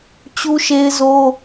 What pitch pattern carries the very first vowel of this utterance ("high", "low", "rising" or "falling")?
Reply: high